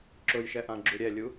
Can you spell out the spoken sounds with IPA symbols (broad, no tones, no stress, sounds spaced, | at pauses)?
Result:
ǁ ʊ j ʃ ɛ ʔ ã ɡ͡ǁ u ɾʲ ɛ lʲ u